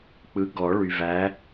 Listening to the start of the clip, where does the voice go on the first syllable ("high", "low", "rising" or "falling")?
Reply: rising